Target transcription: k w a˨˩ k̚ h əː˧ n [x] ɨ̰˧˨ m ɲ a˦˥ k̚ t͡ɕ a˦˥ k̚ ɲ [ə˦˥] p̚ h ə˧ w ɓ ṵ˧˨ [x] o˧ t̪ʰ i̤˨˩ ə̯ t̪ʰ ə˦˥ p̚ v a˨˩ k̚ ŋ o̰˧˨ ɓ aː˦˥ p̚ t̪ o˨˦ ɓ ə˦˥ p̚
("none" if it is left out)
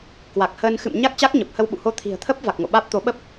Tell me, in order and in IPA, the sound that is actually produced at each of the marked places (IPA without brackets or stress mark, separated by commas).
x, ə˨˩, h